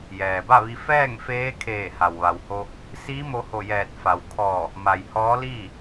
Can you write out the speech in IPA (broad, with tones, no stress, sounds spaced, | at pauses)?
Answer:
j ɛː˩ b a˥˨ ʋ i˧ f ɛː˥˨ ŋ f eː˧˥ kʰ eː˧˩ h a˩ w ʋ a˩ w h o˧ | s iː˧˥ m o˧ h o˧˩ j ɛː˧˩ t̚ f a˩ w kʰ ɔː˧˩ | m a˩ j h ɔː˧˥ l iː˥˨